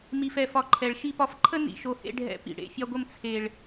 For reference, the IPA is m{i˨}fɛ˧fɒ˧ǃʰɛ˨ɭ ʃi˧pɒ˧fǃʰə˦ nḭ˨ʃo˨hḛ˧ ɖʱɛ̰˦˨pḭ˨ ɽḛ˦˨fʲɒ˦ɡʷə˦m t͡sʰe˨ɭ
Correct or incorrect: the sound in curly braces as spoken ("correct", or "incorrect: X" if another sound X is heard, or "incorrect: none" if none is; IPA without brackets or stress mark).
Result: incorrect: i˧